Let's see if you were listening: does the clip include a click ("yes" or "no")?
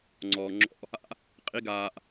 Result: yes